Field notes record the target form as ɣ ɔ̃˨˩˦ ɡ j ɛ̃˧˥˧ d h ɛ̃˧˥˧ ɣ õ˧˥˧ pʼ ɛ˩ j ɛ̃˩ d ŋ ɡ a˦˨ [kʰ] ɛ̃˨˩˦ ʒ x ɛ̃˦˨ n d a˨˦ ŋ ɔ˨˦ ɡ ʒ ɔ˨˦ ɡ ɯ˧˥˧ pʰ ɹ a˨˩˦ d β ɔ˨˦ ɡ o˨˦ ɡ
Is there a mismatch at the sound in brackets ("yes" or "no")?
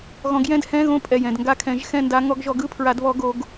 no